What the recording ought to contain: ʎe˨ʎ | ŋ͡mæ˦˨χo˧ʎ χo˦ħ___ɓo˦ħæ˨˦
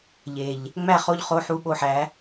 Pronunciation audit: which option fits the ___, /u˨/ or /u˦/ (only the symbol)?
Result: u˦